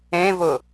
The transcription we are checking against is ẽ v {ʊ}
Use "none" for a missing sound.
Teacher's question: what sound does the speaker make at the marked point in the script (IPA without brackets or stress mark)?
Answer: ʊ